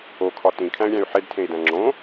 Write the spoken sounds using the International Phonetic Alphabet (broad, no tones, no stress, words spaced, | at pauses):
okʰɒ tĩkʰæ̃y̯ɾʲæ̃y̯ ħedtʰẽi̯dæ̃ ŋ͡ǁõ